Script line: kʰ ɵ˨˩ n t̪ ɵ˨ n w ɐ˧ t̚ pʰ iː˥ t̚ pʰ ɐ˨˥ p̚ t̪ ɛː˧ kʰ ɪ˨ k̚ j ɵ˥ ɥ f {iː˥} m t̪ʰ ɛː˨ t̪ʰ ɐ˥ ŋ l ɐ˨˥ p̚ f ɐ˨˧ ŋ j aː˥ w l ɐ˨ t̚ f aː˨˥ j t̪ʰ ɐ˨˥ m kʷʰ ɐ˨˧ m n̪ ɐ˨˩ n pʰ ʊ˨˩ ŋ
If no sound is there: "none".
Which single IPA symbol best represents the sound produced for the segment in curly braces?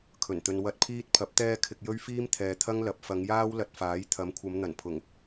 iː˥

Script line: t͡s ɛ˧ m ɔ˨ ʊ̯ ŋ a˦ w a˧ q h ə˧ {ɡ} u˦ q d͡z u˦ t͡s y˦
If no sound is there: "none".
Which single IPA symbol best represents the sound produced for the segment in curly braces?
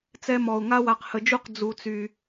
d͡ʒ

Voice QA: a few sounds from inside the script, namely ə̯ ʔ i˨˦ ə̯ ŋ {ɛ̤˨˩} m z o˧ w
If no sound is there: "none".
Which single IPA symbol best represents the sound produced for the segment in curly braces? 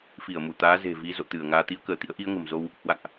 ə̤˨˩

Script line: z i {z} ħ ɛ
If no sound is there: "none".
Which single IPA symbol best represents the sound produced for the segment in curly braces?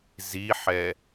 none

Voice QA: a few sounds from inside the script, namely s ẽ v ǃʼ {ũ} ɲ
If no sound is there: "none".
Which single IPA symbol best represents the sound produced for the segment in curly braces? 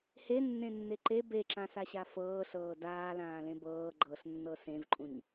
ũ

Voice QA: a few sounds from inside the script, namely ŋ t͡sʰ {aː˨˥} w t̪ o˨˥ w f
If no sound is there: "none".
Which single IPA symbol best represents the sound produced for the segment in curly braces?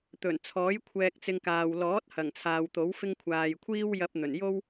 aː˨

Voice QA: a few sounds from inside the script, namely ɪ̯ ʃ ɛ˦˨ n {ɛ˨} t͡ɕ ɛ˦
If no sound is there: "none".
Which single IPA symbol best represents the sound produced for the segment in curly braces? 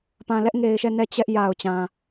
ɛ˦˨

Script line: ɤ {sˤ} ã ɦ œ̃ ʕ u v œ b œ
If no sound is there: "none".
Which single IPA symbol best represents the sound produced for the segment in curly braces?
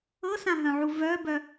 s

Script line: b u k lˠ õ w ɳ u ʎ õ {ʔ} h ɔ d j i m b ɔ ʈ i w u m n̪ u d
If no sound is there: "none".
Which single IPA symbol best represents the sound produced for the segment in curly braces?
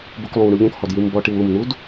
k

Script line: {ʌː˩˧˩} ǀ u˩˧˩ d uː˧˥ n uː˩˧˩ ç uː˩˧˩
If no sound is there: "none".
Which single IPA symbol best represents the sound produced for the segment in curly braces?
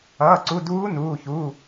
ʌː˩˧˩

